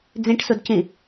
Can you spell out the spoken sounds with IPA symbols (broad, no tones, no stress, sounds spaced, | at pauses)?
d͡z ĩ ʈ s u d c ĩ